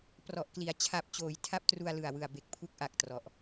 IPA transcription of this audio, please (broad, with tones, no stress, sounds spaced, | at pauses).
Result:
p r ɔ˨˩ ʔ k l i˩˦ a̯ t͡ɕʰ a˨˩ p̚ t͡ɕ oː˩˦ j tʰ a˦˥ p̚ t r u˧ a̯ l ɯ˨˩ a̯ w ɯ˨˩ a̯ b e˨˩ k̚ pʰ u˦˥ k̚ ʔ a˨˩ k̚ t r ɔ˨˩ ʔ